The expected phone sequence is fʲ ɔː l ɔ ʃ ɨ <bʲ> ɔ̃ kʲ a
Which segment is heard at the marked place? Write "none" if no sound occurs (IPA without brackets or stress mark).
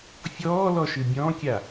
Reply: bʲ